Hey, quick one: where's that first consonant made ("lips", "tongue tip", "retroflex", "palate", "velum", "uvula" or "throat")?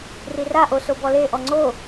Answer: tongue tip